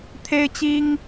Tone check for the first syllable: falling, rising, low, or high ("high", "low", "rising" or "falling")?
high